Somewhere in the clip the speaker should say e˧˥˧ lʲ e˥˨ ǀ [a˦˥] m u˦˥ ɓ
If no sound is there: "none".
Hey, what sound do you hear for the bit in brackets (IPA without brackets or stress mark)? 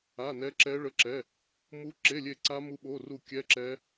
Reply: a˦˥